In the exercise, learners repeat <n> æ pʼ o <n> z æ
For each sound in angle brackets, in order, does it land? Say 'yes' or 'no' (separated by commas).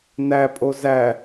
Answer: yes, no